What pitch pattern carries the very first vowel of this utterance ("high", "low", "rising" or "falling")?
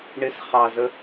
high